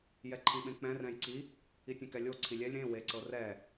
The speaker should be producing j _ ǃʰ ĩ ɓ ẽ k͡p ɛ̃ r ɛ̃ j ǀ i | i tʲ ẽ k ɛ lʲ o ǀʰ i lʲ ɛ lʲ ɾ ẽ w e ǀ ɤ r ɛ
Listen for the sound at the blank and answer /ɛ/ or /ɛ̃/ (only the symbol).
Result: ɛ